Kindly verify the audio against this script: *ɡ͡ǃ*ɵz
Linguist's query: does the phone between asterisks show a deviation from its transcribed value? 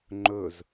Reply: yes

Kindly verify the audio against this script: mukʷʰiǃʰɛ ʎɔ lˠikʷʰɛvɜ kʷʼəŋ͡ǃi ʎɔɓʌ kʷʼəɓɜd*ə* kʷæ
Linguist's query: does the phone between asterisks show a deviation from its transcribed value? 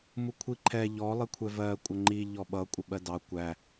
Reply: yes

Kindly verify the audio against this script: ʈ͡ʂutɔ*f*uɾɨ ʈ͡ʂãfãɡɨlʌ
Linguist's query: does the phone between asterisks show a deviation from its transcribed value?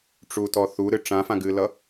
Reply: yes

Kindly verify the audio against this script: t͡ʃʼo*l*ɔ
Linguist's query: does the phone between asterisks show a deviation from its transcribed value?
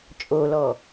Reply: no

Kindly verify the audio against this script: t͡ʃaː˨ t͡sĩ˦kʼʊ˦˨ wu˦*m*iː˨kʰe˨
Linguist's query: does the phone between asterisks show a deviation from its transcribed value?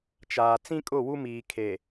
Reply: no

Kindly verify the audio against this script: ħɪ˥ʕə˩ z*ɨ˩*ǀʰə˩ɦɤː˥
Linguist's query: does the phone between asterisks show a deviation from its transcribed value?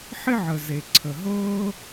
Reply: yes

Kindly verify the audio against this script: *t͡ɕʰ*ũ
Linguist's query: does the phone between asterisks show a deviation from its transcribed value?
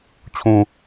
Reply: no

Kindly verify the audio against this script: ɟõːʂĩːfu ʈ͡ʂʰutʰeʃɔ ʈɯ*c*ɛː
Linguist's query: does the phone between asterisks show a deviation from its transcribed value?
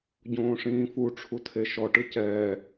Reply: no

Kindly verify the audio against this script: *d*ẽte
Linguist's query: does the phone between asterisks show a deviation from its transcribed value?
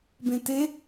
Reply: yes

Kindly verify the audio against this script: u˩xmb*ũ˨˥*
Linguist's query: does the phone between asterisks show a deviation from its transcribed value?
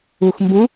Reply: no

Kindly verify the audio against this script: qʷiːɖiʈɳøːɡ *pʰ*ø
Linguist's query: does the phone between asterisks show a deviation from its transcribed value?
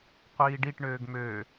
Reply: yes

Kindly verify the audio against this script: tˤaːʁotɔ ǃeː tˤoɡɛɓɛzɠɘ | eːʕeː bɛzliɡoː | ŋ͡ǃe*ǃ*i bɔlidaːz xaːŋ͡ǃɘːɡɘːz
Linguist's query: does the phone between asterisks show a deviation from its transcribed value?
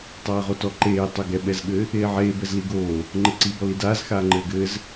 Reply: yes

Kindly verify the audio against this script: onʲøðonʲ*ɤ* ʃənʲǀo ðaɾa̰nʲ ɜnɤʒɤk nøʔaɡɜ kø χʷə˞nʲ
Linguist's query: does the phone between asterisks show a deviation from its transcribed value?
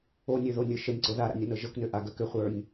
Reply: yes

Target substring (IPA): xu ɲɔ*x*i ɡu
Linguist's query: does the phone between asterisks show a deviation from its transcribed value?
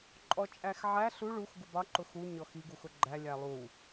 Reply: no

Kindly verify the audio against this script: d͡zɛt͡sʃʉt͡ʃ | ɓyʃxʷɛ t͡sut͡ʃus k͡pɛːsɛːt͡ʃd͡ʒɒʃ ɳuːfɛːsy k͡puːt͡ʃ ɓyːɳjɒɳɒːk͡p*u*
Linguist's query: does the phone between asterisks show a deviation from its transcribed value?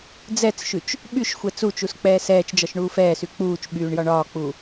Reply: no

